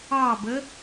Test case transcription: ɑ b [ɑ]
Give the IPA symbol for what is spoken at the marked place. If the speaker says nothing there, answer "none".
ə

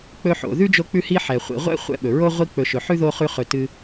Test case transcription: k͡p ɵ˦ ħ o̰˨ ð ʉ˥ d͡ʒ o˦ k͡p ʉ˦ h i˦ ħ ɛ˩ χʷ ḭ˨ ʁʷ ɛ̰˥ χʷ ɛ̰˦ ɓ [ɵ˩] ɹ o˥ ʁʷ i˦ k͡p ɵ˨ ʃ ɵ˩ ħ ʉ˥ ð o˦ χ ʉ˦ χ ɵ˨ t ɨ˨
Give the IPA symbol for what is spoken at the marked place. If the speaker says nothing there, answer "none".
ɵ˩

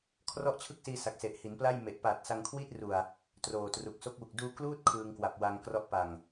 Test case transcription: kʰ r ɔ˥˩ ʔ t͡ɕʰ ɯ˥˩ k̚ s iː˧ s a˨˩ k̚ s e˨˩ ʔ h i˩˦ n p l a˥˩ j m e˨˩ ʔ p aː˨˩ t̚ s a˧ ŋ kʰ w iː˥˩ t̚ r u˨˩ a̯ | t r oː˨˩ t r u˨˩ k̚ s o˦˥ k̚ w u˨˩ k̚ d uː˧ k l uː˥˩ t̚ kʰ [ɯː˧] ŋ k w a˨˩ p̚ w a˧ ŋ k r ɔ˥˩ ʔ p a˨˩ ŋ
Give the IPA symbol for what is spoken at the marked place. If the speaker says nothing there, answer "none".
ɯː˧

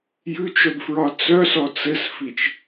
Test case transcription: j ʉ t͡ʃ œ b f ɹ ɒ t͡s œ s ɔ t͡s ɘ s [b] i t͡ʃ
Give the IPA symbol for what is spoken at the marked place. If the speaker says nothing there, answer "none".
f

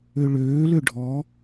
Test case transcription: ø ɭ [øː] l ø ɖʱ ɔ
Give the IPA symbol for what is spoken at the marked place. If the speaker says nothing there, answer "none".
øː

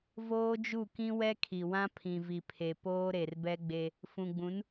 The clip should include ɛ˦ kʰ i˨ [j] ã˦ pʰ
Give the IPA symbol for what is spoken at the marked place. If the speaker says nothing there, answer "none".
w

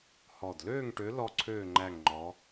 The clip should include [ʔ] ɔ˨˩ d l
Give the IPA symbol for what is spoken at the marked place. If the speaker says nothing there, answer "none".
h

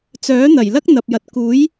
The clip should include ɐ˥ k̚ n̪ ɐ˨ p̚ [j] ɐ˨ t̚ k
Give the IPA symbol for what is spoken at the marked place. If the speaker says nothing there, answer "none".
j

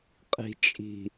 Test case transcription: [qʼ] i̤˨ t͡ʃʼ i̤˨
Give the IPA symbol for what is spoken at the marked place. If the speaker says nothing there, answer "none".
qʼ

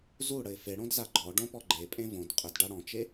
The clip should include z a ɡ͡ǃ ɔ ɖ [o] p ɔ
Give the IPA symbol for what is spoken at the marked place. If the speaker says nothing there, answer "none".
õ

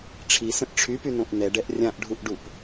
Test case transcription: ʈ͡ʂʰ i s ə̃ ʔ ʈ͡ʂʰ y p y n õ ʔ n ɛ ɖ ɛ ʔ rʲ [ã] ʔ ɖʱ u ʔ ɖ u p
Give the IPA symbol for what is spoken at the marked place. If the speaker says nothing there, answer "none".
ã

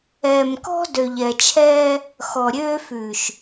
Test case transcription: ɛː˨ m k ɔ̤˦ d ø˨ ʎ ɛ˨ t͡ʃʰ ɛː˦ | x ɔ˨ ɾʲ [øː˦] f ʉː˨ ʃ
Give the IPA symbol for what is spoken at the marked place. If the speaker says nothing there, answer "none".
øː˦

